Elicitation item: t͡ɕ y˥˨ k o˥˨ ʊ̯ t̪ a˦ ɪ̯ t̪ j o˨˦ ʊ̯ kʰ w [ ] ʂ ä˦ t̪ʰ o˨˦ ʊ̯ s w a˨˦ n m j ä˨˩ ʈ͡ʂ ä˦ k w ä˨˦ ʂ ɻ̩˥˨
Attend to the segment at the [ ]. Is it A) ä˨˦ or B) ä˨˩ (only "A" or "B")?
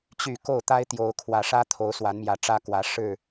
B